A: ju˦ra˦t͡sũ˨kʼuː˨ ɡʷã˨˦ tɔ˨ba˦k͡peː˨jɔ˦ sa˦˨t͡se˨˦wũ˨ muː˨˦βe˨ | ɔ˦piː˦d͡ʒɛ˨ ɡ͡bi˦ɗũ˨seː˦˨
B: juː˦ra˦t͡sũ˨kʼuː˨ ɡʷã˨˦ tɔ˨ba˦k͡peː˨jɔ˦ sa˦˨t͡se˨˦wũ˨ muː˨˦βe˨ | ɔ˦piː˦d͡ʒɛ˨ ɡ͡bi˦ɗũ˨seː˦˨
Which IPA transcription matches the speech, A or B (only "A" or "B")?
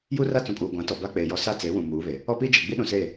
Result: A